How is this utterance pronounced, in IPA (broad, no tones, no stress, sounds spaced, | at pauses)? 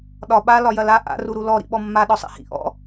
ɗ ɒ ɓ a l ɒ j ɐ l a ʔ a̰ r u ɾ u l ɔ ɾ ḭ ɓ ɔ mː a ɗ ɔ sˤ ḛ h ḭ ʔ ɔ̰